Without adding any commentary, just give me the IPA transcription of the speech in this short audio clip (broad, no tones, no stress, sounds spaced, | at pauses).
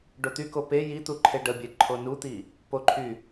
ɖ o t̪ y k o p e j i t̪ u ǃʰ e ɖ ə bʲ e ǃʰ o n u t̪ i | p o ǃʰ y